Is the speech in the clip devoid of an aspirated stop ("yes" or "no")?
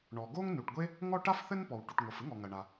yes